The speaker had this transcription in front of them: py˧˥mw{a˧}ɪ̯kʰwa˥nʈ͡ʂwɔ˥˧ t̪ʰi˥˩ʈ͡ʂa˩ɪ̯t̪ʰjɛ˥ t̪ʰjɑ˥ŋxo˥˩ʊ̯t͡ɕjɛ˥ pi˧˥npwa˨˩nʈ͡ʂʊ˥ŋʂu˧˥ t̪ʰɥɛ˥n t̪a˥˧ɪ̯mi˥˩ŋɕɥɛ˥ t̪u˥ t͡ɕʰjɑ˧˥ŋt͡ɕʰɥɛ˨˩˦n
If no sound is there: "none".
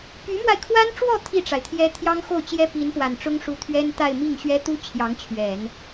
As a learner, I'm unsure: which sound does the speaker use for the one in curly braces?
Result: a˧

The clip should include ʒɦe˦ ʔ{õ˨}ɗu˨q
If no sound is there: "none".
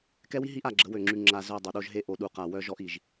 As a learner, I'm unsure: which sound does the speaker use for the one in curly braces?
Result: o˨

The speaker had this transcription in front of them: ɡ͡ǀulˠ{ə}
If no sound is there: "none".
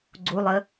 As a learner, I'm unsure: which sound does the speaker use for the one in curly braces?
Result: ə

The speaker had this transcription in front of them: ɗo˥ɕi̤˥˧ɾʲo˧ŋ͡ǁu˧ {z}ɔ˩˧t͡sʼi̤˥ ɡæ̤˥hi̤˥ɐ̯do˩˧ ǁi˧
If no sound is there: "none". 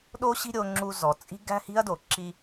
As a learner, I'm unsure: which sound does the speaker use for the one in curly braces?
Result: z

